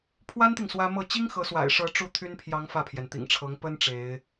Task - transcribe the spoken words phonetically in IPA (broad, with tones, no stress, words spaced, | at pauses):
pʰwa˥nt̪i˨ŋ swä˥ mɤ˥˩ t͡ɕi˥ŋ xɤ˧˥swa̰˨˩ɪ̯ʂɤ˧˥ ʈ͡ʂu˥˩t̪ʰy˥npʰjɑ˧˥ŋ fä˥˩pʰjɛ˩nt̪ḭ˨˩ŋʈ͡ʂʰɤ˧˥ŋ pə˥n ʈ͡ʂe˧˥ɪ̯